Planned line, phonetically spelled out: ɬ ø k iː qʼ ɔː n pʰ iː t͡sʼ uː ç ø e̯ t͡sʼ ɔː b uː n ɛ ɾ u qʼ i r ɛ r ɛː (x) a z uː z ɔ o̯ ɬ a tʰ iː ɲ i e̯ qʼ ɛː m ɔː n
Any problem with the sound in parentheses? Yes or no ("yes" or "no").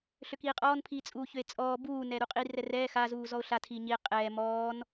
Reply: no